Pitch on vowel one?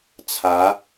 rising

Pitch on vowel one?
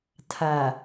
low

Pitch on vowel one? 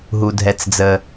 low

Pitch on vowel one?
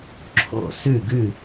falling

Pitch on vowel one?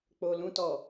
low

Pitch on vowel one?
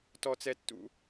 high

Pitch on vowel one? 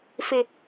low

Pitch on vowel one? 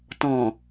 low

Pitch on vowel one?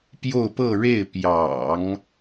falling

